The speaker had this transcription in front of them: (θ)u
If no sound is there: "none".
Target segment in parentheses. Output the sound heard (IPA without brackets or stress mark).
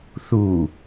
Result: θ